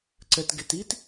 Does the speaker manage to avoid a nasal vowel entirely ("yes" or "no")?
yes